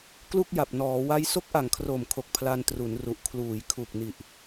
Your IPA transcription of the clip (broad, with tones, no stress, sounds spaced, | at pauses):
k l u˥˩ k̚ j a˨˩ p̚ n ɔː˩˦ w a˦˥ j s o˦˥ k̚ ʔ a˨˩ ŋ kʰ r o˨˩ m kʰ o˨˩ k̚ pʰ l a˧ n t r u˩˦ n r u˨˩ ʔ kʰ l uː˩˦ j kʰ u˨˩ k̚ n i˨˩ ʔ